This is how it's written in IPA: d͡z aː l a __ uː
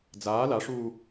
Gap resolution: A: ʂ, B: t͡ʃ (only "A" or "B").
A